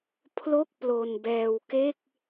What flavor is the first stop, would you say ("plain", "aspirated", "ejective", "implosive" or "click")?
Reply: aspirated